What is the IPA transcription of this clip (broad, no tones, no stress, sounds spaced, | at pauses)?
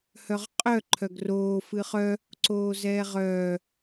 h œ ʁ qʼ œ ǃʰ œ ɡ r oː f ɨ χ œ | ǀ oː z ɛː ʁ œː